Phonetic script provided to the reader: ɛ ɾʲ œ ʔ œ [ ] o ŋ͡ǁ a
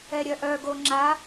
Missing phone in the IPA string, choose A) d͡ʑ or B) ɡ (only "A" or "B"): B